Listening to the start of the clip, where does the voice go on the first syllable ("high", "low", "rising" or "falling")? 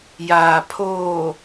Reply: low